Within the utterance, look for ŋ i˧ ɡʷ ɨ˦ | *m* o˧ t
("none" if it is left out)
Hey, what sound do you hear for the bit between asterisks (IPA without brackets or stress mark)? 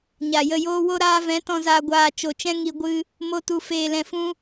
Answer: m